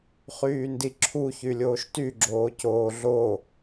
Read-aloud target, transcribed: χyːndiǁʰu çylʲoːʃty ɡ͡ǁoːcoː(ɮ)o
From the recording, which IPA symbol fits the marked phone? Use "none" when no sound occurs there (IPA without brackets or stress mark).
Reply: ɮ